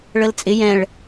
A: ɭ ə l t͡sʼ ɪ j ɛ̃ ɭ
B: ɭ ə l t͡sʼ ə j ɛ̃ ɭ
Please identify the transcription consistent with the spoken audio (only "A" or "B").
A